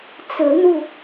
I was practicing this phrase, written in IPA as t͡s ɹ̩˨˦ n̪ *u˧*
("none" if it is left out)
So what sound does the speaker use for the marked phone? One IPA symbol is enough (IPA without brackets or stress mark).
u˧